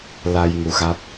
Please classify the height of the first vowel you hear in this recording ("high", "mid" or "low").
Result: low